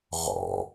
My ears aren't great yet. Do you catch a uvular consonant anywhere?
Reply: yes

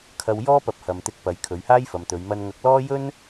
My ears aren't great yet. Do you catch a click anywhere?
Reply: no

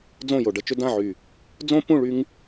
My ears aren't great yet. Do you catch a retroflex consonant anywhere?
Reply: yes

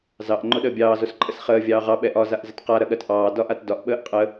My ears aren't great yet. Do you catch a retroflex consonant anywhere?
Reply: no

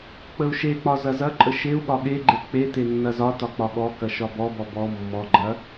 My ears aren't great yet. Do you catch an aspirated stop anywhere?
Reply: no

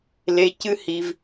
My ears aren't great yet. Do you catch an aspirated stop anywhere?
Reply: no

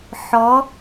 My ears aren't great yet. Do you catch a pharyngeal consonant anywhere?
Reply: yes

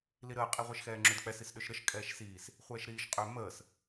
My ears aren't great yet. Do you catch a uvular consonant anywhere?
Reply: yes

